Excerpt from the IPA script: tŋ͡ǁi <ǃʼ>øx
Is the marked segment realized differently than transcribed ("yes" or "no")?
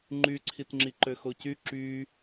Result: yes